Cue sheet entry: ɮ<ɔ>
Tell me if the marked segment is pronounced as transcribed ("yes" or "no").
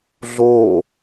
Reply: no